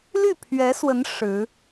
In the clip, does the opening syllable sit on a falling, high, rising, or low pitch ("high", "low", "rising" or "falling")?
falling